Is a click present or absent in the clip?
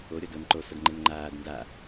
present